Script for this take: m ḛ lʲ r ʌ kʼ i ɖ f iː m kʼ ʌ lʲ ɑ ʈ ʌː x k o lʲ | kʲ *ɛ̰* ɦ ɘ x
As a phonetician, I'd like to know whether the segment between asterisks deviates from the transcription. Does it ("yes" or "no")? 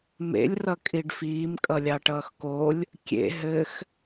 yes